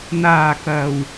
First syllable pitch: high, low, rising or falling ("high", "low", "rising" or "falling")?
low